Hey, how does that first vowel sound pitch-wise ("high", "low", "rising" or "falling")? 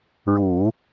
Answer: low